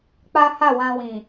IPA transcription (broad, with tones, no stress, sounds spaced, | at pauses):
k͡p a˦ h a˦˨ w ã˧ w ĩ˨